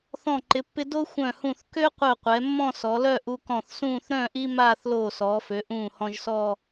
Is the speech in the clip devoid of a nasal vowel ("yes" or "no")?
no